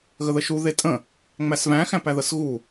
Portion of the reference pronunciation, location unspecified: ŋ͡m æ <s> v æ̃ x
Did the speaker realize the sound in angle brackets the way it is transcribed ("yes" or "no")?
yes